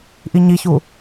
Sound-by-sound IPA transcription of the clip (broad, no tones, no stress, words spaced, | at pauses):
ʔiɲiçu